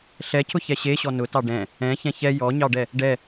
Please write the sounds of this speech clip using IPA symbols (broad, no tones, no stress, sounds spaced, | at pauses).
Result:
ɬ ɛ cʰ ʊ ç ɛ ɕ e ɕ ɔ n ʊ t ɑ ɖ ɛ̃ | ɛ̃ ç ɛ̃ ç ɛ j ɔ ɲ ɑ ɖ ɛ | ɖ ɛ